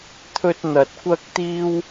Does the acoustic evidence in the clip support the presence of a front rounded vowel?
no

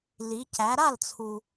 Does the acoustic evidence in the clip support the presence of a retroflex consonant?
no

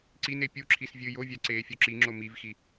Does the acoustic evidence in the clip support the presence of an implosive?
no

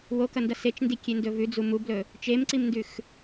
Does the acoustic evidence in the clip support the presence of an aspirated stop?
no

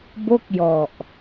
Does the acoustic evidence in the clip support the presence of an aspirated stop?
no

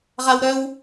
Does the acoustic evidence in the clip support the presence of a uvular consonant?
yes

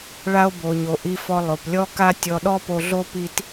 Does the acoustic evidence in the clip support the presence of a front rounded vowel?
no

